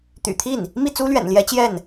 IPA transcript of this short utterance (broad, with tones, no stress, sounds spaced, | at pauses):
t̪ y̰˨˩ t̪ʰ i˥˩ n | m i˥˩ t͡s u˥ l ɥ ɛ̰˨˩ n l j ɛ˧˥ t͡ɕ j ɛ˥˩ n